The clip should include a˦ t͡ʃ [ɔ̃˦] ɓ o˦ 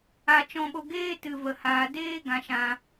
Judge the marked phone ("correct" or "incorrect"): correct